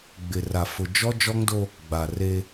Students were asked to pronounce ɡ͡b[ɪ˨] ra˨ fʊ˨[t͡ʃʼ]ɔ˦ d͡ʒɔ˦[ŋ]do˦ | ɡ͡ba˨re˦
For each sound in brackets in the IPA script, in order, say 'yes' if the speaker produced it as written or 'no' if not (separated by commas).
yes, no, yes